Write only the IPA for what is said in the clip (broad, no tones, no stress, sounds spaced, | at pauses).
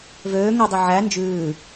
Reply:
v øː ŋ ɵ dˤ i ʕ æ n d͡ʒ ʉː